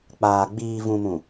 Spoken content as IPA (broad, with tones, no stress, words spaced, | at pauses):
k͡paː˨ ɡ͡biː˨vũ˨ mũ˨